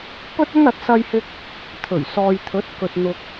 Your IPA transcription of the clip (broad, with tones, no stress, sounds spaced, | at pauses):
p ɵ˥ t̚ ɵ˥ n ɐ˨˥ t̚ s ɐ˧ j h ɪ˧ k̚ | t̪ʰ ɵ˨˩ ɥ s ɔː˨ j t̪ʰ ɵ˨˥ t̚ k ɵ˨ t̚ n̪ ʊ˨ k̚